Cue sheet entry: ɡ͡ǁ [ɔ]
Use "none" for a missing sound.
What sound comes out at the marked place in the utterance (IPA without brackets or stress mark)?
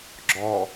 ɔ